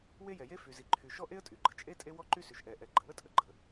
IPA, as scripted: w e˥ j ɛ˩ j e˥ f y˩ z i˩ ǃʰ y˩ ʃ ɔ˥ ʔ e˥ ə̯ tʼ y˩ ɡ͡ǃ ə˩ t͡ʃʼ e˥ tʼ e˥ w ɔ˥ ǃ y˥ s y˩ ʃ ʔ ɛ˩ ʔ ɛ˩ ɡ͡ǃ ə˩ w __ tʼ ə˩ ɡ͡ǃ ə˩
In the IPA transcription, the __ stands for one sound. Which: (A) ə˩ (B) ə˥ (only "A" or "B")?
B